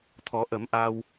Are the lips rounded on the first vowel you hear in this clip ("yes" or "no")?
yes